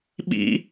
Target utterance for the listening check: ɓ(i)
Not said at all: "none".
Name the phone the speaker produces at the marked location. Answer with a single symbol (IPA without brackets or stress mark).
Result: ḭ